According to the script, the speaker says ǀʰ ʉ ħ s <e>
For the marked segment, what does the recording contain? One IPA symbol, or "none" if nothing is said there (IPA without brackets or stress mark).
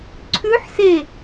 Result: e